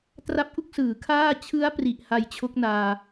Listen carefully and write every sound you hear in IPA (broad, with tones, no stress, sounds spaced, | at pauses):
t r a˦˥ p̚ ʔ u˥˩ k̚ s ɯː˩˦ kʰ aː˥˩ t͡ɕʰ ɯ˦˥ a̯ p r i˨˩ ʔ h a˧ j t͡ɕʰ o˦˥ k̚ n aː˧